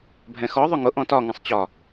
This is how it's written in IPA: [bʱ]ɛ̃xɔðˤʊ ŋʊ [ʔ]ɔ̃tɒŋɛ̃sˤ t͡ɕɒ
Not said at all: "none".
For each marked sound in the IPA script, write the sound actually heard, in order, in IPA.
bʱ, ʔ

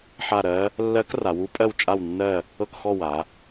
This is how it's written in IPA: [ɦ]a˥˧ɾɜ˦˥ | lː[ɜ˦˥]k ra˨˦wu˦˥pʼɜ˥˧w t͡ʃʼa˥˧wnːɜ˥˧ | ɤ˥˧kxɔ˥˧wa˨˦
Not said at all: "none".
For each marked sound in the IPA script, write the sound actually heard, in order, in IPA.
ħ, ɜ˦˥

